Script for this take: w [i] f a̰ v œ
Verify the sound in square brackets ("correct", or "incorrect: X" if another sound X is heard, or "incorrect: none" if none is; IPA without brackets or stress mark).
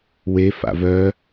incorrect: e